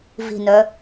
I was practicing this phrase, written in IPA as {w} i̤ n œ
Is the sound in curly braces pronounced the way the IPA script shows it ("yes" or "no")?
no